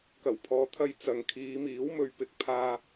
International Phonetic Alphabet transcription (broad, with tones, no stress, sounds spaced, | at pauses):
k ɐ˨˩ w pʰ ɔː˨ t̪ʰ ɐ˧ j t͡s ɐ˨˧ ŋ kʰ iː˨˧ m iː˨˥ w m ɵ˨ ɥ p ɪ˨ k̚ pʰ aː˧